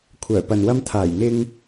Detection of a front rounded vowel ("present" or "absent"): present